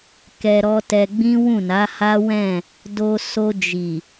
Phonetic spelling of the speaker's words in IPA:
k ɛ˧ ɾ ɔ˦ t ɛ˧ ɡ͡b ĩ˦ w ũ˦˨ n a˨˦ h a˦ w ɛ̃˦˨ | d o˧ s o˧ d͡ʒ i˨

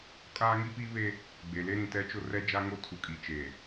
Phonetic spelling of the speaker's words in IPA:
kʼ aː˦ ŋ i˦ p i˦ β e˦ | ɡ͡b e˨ l e˦ ɾ ĩ˨ t ɛ˦ t͡ʃ ʊ˦ r ɛ˦ d͡ʒ a˦ ŋ o˦ tʰ u˨ kʼ i˨ t͡ʃ e˨

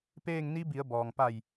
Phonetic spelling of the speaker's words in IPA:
p eː˥˨ ŋ n i˧˥ b i˩˧ ə̯ b ɔː˩ ŋ p a˧˩ j

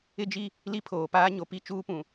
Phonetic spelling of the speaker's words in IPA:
ɪ˦ d͡ʒ i˦ | l i˦ pʰ oː˨ p aː˦ ɲ o˨ p i˦˨ t͡ʃ uː˦ p ũ˨

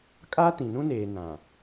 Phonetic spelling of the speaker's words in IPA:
kʼ aː˦ t ĩ˨ n ũ˦ n eː˨ n ã˨

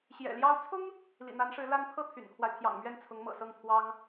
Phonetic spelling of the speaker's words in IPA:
ɕ j ɛ̰˨˩ l j ɑ˥ ʊ̯ t͡sʰ ʊ˥ ŋ | l ḭ˨˩ n̪ a˧˥ n ʂ ɻ̩˧˥ l a˥ n pʰ ɤ˥˩ t̪ʰ y̰˨˩ n kʰ w a˦ ɪ̯ t̪ʰ j ɑ̰˨˩ ŋ m ɥ ɛ˥˩ n t͡sʰ ʊ˧˥ ŋ m ɤ̰˨˩ s ɤ˥˩ ŋ t̪ʰ w ɑ˥ ŋ

